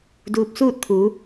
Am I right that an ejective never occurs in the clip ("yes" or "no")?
yes